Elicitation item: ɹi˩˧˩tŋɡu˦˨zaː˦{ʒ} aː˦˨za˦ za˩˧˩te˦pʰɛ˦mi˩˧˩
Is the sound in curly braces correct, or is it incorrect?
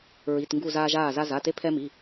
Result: correct